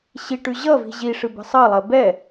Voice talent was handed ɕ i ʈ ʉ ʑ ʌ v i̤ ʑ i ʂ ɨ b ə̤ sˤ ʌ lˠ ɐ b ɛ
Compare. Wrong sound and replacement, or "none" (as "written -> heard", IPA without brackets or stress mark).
none